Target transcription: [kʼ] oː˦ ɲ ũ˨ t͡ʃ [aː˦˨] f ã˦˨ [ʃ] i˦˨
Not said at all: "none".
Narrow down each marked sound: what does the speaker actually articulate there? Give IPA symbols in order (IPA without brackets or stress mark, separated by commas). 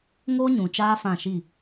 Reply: ŋ, aː˦, ʃ